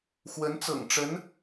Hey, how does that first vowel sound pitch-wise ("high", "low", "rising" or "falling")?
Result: rising